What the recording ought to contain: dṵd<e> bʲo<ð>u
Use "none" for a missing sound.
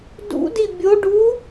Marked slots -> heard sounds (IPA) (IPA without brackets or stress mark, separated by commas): i, ɖ